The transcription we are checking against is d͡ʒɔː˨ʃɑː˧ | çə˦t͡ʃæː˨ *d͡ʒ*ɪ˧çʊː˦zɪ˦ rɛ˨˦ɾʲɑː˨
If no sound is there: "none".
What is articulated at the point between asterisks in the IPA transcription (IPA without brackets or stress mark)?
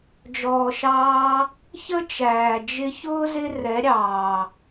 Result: d͡ʒ